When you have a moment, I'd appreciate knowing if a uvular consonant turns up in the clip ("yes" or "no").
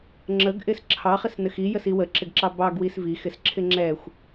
yes